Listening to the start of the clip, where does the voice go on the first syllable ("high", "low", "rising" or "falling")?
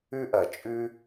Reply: high